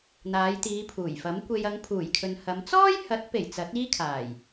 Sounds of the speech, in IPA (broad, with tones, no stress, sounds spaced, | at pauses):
n̪ aː˨˧ j t̪ iː˨˧ pʰ uː˨˩ j f ɐ˨˥ m kʷ e˧ j ɐ˨˧ ŋ pʰ uː˨˩ j kʰ ɵ˨ n h ɐ˨˧ m t͡s ɔː˥ j h ɐ˨˥ t̚ p e˨˩ j t͡s ɐ˨˥ t̚ iː˥ kʰ aː˨˩ j